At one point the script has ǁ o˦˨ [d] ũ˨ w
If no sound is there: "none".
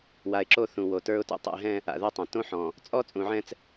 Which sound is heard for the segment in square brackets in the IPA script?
θ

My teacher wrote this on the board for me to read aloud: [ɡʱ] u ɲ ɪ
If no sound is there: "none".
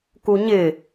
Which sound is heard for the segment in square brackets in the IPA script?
k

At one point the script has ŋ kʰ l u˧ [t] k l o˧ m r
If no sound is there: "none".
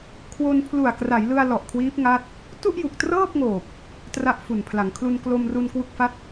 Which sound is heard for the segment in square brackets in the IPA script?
n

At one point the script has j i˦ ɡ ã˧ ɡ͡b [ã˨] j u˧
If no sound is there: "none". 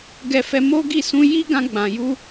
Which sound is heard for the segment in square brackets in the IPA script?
ã˨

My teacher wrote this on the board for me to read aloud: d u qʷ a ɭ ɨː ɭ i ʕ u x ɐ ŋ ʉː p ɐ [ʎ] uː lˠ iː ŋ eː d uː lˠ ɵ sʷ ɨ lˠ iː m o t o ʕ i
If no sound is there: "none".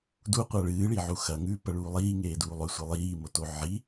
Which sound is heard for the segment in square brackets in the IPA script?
ɭ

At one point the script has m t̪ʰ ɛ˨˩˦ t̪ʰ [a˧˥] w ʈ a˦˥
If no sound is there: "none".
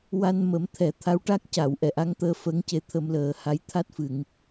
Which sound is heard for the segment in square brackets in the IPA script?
a˧˥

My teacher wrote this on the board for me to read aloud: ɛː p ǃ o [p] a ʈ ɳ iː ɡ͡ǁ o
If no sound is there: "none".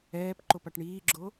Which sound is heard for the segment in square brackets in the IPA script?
p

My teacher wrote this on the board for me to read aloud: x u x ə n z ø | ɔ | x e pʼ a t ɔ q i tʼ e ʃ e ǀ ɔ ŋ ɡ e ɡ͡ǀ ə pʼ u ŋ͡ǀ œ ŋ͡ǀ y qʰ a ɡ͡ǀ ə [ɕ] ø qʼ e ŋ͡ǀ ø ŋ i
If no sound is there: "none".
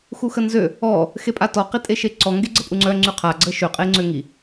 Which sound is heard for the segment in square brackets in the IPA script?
ʃ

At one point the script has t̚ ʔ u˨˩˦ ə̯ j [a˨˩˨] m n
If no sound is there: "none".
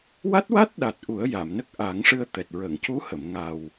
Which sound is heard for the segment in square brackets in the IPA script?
a˨˩˨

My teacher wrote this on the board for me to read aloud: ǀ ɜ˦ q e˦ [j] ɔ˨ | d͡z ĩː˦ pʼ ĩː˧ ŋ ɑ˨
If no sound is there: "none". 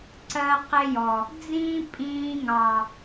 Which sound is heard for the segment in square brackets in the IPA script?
j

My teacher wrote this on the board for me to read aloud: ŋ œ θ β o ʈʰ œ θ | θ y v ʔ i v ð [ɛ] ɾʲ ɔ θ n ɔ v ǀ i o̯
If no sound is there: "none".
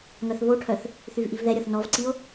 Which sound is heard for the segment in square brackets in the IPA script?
ɛ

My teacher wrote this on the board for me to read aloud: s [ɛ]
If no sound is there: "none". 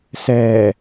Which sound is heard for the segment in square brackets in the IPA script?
ɛː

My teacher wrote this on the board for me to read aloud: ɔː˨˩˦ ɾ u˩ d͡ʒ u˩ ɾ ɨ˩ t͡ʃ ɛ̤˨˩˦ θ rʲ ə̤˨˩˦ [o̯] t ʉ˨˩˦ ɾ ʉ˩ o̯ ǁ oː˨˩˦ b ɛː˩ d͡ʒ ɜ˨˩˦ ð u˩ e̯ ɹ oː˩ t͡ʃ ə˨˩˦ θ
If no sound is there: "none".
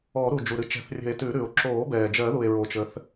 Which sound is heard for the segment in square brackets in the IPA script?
e̯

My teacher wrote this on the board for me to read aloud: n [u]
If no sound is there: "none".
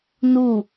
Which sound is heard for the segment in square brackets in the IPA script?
u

